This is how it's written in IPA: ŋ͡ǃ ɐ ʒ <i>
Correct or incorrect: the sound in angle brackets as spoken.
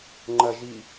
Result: correct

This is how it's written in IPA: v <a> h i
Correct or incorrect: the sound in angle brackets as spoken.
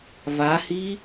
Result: correct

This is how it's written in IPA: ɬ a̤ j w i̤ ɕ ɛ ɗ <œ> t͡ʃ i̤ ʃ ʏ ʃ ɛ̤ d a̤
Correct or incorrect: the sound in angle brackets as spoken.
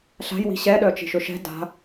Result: correct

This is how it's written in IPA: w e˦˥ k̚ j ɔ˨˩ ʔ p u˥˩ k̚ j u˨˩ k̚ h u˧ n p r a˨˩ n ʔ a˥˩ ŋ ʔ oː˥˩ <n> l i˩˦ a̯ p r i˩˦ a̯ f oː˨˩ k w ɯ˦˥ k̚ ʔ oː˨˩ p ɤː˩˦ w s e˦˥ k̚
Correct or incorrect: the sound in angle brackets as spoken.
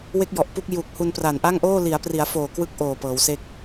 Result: incorrect: none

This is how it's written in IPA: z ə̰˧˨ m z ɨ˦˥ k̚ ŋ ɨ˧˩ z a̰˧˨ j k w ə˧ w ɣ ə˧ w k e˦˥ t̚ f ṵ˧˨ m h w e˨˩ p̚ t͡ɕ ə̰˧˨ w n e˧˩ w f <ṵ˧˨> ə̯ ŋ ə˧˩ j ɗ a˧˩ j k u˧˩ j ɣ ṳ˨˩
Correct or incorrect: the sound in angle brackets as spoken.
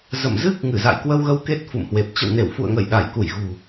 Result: correct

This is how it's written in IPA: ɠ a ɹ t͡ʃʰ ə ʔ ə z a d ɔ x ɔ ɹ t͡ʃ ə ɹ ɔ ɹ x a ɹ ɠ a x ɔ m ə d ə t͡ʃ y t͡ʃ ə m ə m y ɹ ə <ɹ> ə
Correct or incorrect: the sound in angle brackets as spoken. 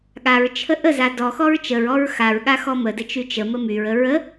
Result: correct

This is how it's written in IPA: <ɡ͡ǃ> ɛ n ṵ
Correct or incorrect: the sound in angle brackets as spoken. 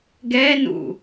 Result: incorrect: ɡ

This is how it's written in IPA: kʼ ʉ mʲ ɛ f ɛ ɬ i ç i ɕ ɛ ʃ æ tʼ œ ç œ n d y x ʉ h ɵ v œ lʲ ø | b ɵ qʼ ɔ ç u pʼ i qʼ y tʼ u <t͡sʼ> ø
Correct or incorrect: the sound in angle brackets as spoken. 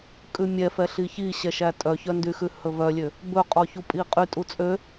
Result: correct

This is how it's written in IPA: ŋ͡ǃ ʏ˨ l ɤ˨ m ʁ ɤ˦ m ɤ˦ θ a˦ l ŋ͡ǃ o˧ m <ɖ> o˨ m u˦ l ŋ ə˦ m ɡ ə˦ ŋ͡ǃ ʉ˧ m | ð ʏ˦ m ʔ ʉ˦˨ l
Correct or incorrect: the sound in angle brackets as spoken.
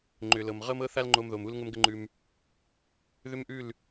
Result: incorrect: ð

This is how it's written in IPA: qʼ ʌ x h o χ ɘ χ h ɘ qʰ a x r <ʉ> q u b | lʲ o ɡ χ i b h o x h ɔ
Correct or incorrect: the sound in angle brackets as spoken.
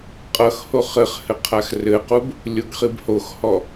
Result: incorrect: ɘ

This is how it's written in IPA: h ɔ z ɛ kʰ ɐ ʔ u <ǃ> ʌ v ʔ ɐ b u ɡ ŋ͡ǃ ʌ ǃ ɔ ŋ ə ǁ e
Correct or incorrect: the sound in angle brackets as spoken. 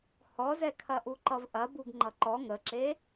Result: correct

